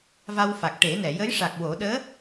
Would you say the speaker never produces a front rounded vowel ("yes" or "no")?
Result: yes